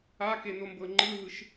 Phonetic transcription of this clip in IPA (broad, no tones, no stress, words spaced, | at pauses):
akenombɤ ŋ͡ǃɯɦɯʃ